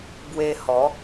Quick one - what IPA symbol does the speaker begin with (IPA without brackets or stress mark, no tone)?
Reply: b